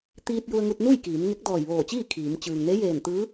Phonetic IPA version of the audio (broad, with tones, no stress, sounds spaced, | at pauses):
t̪ iː˧ t̚ j u˧ ə̯ ŋ u˧ t̚ n u˥˨ j k iː˩˧ m ŋ e˧˥ k̚ d ɔː˧˩ j ʋ oː˧˩ t͡ɕ iː˥˨ kʰ iː˩˧ m t͡ɕ ɯː˩ ŋ n e˧˥ j eː˧˩ n t̪ ɯː˧˥